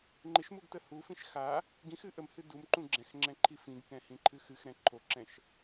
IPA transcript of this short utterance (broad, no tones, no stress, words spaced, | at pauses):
ŋ͡ǃɪʃmuɡtə hufĩʃ xa | ɡĩxɨ ʔəmhɨ dumǃũ ɡ͡ǁɛ̃xŋ͡ǁɛ̃ǃʰi fĩɡkɛ̃hĩǃʰɨ xɨxɾɛ̃ ǃʰoǁɛ̃ʃ